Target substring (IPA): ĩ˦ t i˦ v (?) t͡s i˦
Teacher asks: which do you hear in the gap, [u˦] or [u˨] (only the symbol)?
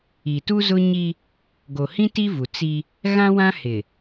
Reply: u˨